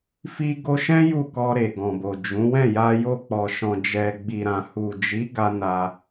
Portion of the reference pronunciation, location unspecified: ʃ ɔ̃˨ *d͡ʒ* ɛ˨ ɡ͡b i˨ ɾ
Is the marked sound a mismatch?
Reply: no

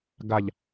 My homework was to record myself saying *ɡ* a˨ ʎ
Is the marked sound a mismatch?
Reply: no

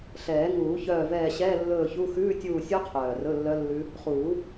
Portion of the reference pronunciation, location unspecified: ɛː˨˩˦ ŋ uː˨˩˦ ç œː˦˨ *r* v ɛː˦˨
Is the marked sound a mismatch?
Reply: yes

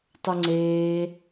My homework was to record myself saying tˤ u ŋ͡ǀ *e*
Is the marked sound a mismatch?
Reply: yes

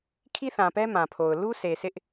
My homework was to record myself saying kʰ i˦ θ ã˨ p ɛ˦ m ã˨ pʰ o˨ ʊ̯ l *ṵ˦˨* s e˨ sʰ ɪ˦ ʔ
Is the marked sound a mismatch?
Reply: yes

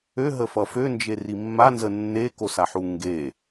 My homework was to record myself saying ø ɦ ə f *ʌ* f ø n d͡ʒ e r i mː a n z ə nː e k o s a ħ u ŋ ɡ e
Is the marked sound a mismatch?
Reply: no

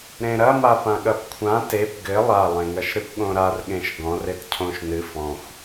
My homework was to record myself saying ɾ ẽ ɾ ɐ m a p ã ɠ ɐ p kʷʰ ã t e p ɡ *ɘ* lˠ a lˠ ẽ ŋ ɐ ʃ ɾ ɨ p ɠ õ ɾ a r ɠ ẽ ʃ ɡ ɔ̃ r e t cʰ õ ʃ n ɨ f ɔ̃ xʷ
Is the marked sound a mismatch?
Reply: no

